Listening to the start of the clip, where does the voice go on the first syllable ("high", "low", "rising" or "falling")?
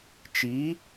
rising